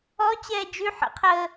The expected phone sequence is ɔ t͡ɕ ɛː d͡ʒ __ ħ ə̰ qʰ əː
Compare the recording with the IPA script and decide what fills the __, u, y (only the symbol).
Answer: y